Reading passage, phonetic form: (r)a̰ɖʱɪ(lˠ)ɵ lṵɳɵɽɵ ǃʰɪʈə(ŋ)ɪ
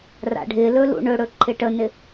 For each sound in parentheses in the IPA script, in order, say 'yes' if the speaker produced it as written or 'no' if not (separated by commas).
yes, no, no